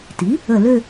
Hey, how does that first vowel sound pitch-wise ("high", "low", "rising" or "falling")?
rising